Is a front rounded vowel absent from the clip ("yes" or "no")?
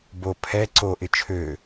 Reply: no